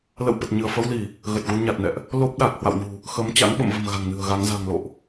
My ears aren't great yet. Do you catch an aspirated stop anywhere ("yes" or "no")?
no